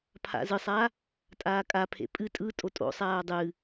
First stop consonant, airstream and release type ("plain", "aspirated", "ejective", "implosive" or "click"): aspirated